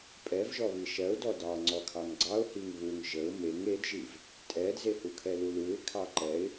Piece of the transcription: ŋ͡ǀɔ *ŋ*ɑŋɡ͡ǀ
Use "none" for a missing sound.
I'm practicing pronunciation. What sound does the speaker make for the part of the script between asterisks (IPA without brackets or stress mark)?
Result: kʰ